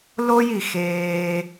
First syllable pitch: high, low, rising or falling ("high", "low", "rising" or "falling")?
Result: high